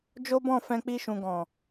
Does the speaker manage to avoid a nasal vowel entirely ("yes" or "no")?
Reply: no